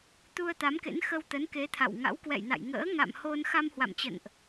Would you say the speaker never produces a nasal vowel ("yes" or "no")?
yes